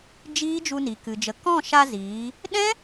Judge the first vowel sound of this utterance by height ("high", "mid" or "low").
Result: high